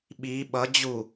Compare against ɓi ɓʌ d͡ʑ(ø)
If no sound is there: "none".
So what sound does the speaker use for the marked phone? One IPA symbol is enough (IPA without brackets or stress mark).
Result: u